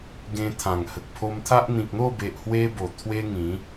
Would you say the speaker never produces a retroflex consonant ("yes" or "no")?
yes